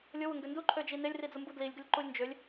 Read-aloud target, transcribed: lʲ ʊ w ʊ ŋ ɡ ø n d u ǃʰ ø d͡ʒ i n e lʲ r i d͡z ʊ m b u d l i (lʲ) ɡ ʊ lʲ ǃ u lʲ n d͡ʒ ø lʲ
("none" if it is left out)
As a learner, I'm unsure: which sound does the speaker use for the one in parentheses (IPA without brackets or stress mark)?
lʲ